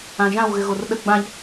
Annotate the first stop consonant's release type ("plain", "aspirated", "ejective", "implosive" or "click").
implosive